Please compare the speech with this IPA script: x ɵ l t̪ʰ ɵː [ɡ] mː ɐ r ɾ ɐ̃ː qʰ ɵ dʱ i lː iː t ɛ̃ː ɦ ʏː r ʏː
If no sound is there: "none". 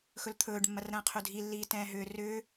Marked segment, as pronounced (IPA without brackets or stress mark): ɖ